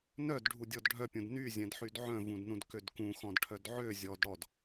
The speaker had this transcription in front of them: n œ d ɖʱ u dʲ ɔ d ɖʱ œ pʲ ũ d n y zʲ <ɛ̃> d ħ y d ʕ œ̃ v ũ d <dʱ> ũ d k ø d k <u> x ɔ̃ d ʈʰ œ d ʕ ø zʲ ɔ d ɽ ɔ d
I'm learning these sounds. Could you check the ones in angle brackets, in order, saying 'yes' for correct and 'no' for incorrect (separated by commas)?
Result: yes, no, no